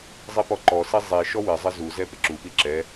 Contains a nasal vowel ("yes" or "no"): no